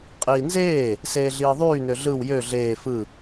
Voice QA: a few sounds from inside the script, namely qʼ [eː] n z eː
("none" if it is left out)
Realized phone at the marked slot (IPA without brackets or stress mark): iː